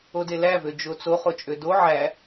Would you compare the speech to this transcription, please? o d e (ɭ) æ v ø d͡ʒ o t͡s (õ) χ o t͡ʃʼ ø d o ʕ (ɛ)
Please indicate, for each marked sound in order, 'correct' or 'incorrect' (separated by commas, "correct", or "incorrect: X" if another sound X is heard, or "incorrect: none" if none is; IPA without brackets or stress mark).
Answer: incorrect: l, incorrect: o, incorrect: æ